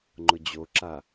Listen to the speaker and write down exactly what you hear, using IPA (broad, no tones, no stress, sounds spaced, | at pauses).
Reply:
ŋ͡ǃ ʊ d͡ʑ o ǁ a